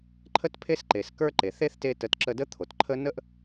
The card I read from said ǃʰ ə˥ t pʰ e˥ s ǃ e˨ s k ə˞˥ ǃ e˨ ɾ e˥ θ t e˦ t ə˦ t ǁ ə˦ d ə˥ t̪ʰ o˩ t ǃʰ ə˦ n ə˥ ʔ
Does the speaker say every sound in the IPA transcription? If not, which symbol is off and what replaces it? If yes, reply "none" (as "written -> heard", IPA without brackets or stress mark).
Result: ɾ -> θ